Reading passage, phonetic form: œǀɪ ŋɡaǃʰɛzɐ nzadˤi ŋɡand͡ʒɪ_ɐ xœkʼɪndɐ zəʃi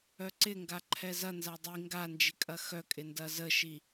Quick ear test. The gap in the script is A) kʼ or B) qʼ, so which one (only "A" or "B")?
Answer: A